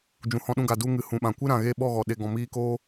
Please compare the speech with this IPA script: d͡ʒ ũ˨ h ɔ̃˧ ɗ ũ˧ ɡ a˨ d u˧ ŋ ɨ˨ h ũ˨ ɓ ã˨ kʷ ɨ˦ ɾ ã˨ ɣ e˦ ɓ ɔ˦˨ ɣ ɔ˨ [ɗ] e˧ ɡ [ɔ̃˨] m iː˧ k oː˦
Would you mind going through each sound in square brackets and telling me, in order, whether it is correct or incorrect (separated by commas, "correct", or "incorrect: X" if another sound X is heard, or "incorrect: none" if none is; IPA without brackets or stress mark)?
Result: correct, incorrect: ɔ̃˧